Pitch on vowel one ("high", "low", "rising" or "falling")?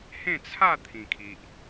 falling